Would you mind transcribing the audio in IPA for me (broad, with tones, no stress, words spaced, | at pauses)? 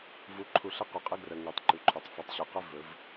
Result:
vu˨ǃʰu˨ɬ ə˦˨qu˨qʼə˦ ɡrə˨ ŋy˨tˤǃy˨ǃʰɵ˨tˤ fy˨tˤɕo˨qɵ˦ vɵ˨˦v